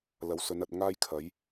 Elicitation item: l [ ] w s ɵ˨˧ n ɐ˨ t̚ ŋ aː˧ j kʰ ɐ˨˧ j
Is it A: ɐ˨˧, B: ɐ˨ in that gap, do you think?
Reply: A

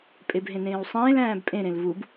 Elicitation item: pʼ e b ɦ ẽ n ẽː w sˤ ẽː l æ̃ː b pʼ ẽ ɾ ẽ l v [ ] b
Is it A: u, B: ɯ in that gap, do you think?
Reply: A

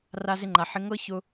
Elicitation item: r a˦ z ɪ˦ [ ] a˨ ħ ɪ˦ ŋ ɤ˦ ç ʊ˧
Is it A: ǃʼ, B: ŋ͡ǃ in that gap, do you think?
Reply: B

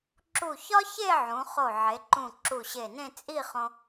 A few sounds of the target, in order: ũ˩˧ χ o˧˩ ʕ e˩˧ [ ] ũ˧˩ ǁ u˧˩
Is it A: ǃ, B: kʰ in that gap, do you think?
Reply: A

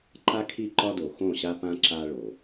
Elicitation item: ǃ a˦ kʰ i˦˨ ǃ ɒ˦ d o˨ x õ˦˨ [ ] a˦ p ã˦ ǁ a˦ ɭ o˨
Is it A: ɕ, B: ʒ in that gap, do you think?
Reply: A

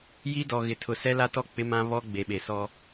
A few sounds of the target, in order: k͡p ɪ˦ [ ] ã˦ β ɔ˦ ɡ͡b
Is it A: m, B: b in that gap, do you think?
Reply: A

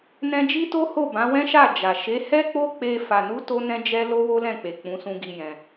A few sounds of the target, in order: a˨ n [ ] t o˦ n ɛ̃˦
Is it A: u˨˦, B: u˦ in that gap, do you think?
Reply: A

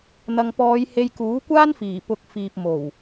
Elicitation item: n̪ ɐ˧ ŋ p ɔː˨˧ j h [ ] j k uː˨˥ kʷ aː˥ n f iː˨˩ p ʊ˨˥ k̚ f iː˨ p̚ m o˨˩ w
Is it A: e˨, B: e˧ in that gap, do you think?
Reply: B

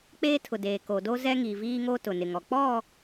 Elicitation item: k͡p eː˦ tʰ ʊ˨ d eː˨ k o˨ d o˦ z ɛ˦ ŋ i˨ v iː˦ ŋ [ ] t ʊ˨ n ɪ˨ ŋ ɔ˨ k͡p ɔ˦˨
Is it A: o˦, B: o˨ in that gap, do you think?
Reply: A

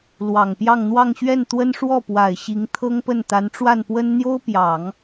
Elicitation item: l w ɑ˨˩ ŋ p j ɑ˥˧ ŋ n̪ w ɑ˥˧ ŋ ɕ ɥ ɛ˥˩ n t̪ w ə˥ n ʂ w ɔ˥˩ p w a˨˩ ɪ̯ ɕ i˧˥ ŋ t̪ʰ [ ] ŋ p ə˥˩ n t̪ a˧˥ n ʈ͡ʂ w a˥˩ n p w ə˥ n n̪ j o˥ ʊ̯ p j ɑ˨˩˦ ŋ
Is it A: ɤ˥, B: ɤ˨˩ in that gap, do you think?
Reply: A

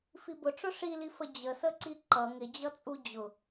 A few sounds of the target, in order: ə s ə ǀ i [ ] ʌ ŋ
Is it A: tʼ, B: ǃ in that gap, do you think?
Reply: B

